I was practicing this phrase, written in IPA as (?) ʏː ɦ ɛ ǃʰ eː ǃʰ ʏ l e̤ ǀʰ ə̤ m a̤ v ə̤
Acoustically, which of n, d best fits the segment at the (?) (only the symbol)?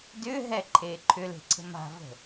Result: d